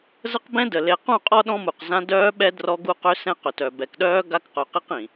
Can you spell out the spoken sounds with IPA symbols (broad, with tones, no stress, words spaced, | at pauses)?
zə˦qbɛ̃˦də˨ le˨qũ˦˨qʼɔ˦ ɗɔ̃˦mu˨qzã˦ dœː˦ɓɛ˦ drɔ˦ɡu˦ qø˦sɛ̃˦qø˨tœ˨ bɛ˨kɗœː˦ ɡa˦kqœ˨qi˦q ĩ˨